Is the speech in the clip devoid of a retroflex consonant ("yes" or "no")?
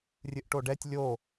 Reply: no